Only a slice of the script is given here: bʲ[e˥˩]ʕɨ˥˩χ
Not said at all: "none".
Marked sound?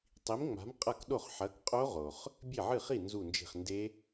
e˥˩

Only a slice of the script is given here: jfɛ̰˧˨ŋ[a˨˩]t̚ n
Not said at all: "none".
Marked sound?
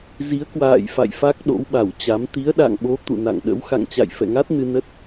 a˦˥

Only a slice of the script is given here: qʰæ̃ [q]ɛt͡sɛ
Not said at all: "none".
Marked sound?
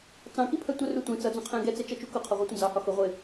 ɡ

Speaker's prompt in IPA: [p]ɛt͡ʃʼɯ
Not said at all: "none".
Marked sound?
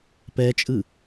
p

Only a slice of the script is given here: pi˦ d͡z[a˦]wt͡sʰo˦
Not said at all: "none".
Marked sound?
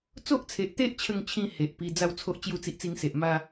a˥˧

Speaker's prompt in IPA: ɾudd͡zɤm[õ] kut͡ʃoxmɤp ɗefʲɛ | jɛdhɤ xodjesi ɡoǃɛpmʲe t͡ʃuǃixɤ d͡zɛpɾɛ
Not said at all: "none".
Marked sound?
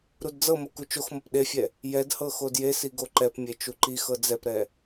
o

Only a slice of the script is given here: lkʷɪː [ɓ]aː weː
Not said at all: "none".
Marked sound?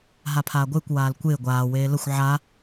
ɡʷ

